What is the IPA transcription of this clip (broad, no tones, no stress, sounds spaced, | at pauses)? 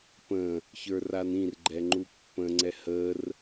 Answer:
p ə̃ | ç ə˞ r a n ĩ r ɡ͡ǃ ɛ ŋ͡ǃ u pː ə̃ ŋ͡ǀ ɛ h ə r